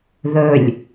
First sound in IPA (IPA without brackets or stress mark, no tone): ð